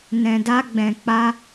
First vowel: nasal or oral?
nasal